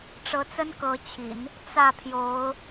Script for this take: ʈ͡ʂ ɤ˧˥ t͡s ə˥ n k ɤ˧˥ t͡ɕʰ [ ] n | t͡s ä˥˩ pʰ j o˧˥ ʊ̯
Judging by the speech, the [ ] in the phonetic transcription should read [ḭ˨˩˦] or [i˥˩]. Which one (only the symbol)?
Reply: ḭ˨˩˦